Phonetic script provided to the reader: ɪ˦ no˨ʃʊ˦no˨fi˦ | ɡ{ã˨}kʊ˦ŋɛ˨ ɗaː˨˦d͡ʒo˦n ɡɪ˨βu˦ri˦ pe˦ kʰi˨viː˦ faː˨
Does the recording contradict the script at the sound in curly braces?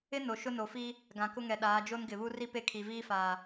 no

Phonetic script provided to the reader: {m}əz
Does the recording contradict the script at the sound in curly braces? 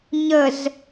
yes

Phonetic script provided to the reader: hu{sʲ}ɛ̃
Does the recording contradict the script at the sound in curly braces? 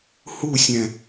no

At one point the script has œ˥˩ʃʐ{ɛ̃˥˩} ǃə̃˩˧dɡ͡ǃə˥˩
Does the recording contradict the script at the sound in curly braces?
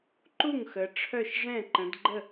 no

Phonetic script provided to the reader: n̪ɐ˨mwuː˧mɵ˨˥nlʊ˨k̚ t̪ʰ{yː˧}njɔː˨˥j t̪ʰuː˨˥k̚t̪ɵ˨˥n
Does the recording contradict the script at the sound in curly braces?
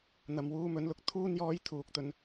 yes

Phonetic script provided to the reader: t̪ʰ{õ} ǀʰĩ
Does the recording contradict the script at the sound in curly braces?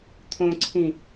no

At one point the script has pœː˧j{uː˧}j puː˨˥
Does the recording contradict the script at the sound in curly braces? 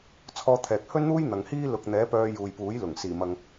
yes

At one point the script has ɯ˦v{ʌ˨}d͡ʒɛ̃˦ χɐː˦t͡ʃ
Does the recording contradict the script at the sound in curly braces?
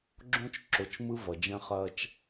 no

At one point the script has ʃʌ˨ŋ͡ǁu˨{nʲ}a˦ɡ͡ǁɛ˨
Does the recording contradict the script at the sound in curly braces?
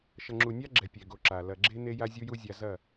no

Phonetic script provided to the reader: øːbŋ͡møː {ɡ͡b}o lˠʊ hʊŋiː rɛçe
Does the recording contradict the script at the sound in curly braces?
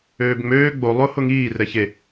no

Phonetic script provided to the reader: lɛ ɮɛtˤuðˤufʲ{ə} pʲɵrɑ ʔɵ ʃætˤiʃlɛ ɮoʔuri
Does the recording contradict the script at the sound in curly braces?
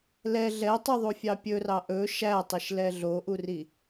yes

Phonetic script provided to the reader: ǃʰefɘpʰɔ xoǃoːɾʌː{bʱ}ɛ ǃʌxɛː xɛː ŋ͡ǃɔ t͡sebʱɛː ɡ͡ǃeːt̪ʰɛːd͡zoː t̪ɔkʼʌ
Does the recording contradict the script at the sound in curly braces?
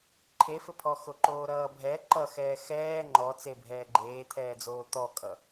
no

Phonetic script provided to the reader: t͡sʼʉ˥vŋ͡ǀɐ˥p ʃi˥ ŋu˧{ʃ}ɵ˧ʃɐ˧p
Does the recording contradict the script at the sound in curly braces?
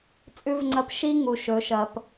no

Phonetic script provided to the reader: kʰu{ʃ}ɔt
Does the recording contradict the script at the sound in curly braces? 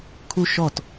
no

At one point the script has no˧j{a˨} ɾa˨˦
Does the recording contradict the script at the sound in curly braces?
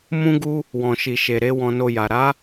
no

